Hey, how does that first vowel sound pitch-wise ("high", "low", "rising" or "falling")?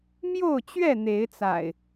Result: falling